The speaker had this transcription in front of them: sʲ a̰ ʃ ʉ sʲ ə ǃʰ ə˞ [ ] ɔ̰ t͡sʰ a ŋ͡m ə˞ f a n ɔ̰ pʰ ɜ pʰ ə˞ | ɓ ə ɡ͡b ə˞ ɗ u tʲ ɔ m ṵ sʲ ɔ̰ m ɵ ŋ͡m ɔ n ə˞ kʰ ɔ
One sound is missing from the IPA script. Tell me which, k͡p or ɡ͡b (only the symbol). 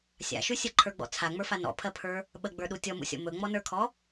ɡ͡b